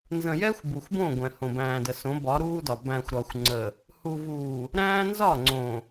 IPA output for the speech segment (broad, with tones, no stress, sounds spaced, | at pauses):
n z ə̃˨ j ɛ˦ xʷ b u˨ xʷ b õ˦˨ ɡʷ ɛ̃˨ h õ˨ b æ̃ː˨ d ə˨ s õ˨˦ b ɒ˨˦ ɾ uː˦ d ɒ˨ b æ̃˨ xʷ ɾ ɒ˨ xʷ ŋ͡ǀ ə˨ | h u˨ v uː˨ | ɾ æ̃ː˦ n z ɒ˦˨ ŋ͡ǀ õ˨